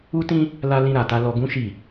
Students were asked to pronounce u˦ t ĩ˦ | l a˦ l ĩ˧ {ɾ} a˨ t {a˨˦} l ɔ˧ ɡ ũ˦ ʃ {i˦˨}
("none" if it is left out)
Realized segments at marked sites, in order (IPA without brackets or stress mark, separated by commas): ɾ, a˧, i˦˨